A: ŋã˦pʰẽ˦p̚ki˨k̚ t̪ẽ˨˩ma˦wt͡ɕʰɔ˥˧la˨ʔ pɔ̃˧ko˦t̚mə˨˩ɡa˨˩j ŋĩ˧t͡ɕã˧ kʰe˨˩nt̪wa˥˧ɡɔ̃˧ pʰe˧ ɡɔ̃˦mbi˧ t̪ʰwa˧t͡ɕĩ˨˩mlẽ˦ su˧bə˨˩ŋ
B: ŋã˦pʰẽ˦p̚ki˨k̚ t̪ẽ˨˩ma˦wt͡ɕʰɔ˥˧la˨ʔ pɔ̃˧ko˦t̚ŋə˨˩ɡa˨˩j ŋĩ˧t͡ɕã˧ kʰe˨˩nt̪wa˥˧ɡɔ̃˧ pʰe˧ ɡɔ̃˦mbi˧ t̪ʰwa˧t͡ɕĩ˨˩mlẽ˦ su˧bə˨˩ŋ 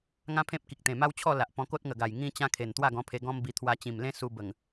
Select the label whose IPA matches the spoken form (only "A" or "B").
B